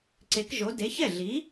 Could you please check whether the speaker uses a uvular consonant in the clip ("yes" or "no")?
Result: no